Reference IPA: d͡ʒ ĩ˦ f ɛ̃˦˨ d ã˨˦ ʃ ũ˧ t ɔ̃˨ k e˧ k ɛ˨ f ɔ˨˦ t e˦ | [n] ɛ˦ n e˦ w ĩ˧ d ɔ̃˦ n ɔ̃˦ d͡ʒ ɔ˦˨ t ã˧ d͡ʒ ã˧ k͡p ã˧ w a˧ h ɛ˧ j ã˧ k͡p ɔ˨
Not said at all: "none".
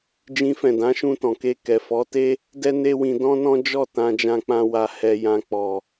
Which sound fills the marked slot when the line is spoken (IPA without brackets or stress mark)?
d